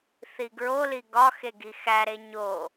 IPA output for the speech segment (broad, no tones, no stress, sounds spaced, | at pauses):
θ i ɡ ɹ o l i ɡ ɒ x e ɡ i x æ ɾ e ɲ o